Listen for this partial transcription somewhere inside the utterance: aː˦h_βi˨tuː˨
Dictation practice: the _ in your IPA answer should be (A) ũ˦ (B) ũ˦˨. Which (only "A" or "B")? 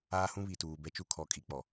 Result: A